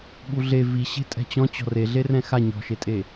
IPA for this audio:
ɓ u ɮ e v i ɕ e̤ tʼ ɛ̤ t͡ɕ ɔ̃ t͡ɕ ɔ̤ r e ɮ e r ɛ̃ x a ɲ ɔ̤ ʃ e tʼ e

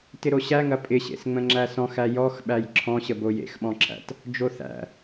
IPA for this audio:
t ɪ ɾ o ɕ æ ŋ ɐ pʼ ɪ ɕ ḛ s ŋ͡m ə̃ ŋ͡ǁ æ s ɔ̃ x æ j ɔ x ɓ æ j ǁʰ ɔ̃ ɕ ə b o j ḛ x ɓ ɔ̃ ǁʰ æ̰ t | d͡ʒ o θ æ̰

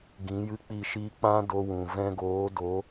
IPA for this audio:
ɡ ĩ˨˦ j ɨ˦˨ k͡p i˦˨ ʃ iː˦ k͡p ã˦ d o˧ w ũ˨ v ɛ̃˧ ɡ oː˨˦ d o˨˦

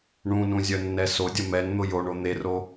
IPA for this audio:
ɳ ũ n ũ zʲ œ nː ɛ s o dʲ ə m ɛ n n̪ ʊ j o ɳ o n̪ e r o

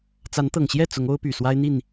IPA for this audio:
t͡s a˨˦ n t̪ ɤ˨˩ ŋ ɕ j ɛ˥˨ t͡s ʊ˨˦ ŋ o˦ ʊ̯ p y˨˩ s w a˦ ɪ̯ n̪ i˥˨ n

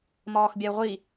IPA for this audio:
m ɒː x bʲ a ʊ̯ ʁʷ i

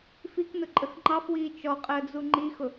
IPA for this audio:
f i k n ʊ ǃʼ ə x ŋ͡ǃ ɑ f w iː t͡ʃ ɔ qʼ əː d͡z u ŋ͡ǃ i x ʊ

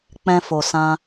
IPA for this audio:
k͡p ɛ̃˧ f o˨ s ã˧

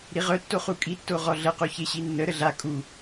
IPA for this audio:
ɾ i ʁ œ tː o χ u kʼ i tː o ʁ ɔ ɮ ə q u ç e ɕ i nː ə ɾ ə ɮ a kʼ u

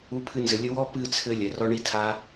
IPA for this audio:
u˧ pʰ ɨ˧ n z ɘ˨ lʲ ɘ˦ w ɔ˦ p ɨ˦˨ t͡sʰ ɘ˧ lʲ ɛ˨ r ɔ˦ ɳ i˦ tʰ a˦

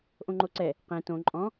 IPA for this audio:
ʔ õ ŋ͡ǃ o ǀ ɛ | q ẽ t õ ǃʼ ɔ̃

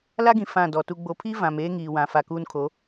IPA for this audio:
l a˦ ɡ ĩ˨ f ã˦˨ d ɔ˨ t u˨ ɡ͡b o˨ pʰ iː˦ v ã˨ m eː˦ ŋ iː˨ w ã˨ f a˨ k uː˦ n kʰ o˨˦

